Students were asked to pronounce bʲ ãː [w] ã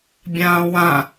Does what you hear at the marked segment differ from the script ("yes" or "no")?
no